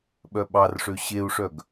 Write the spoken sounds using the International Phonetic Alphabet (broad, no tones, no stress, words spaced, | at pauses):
ɓœɓɑrʂø ɕeu̯ʂœɡ